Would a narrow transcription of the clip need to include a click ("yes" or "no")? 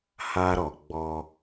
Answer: no